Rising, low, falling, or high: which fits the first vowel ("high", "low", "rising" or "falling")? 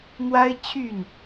high